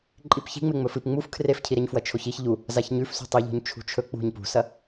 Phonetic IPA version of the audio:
ǃʼ i p ç i̤ ŋ͡m e ŋ͡m ɵ f ɨ p ŋ͡m u f kʰ r e f cʰ i ɾ e ɲ f w ɐ t͡ʃʰ o ç i ç ʎ u | z a ç ɲ ʉ f s ṳ tˤ i ʎ o̤ ɲ t͡ʃʰ ṳ t͡ʃʰ ɵ k͡p ṳ ɲ p ṳ s ɐ

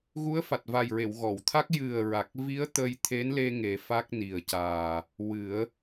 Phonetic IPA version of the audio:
ɣ u˧˥ ə̯ f a˨˩ t̚ v a˨˩ j ɹ e˨˩˨ w ɣ ɔ˨˩˨ w t̪ʰ a˦˥ k̚ j ɨ˨˩ ə̯ ɹ a˨˩ k̚ v i˧˥ ə̯ t̪ ə˧ j t̪ʰ e˧˥ n l e˧ ŋ e˨˩˦ f a˦˥ k̚ n i˨˩ ə̯ c aː˨˩ | w ɨ˨˩˦ ə̯

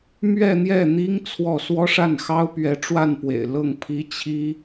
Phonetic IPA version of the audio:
m ɥ ɛ˥˧ n̪ j ɛ˥˩ n̪ i˥ ŋ t͡sʰ w ɔ˥˩ s w ɔ˥ ʂ a˥˩ n x ɑ˥ ʊ̯ p ɥ ɛ˧˥ ʈ͡ʂ w a˥˩ n p w ḛ˨˩ ɪ̯ l ɤ˥˩ ŋ pʰ i˥ t͡ɕʰ i˥

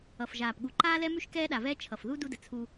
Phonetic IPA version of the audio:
ʌ˨ f ʒ aː˨ p ɠ u˨ ǃ aː˦ l ɛ˦ m ʉ˦ ʃ k ɛː˦ ɗ a˨ v ɛː˦ t͡ʃʰ ʌ˨ f ð u˦ d u˦ d ə˨ t͡sʰ u˦

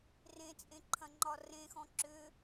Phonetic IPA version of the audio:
r ẽ t͡sʼ ẽ ǃʰ ɐ̃ ŋ͡ǃ ɒ r ẽ x ɔ̃ ǁ ʏ

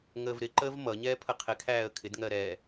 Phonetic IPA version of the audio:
ŋ əː v ɾ ɪ ǃ əː v m ʌ ɲ ɛː pʰ ə qʰ ɪ kʰ æː ə̯ kʰ ɪ d ŋ ɜ ɾ ɛ

